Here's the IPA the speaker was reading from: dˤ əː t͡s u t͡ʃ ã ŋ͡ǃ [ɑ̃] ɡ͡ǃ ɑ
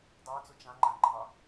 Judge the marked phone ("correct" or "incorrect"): incorrect